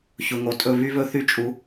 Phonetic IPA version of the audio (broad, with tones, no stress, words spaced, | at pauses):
çʊ˨ŋo˨tʼɵ˦˨ βy˦βɵ˦ θy˦t͡ʃʼu˨˦